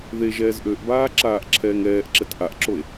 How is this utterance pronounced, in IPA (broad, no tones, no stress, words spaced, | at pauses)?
ðe ʒɛːzʔøʔbaː ǁaːʔǁʰɛːŋɛːʔǁɛt ʔaʔǁoe̯